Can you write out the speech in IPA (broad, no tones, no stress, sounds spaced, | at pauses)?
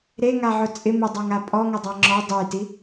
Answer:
ɾ e ŋ a ʕ ʊ t͡sʼ ɪ m ɪ dˤ a ŋ a pʼ ɔ ŋ ʊ dˤ a ŋ͡ǁ ɔ dˤ e j t i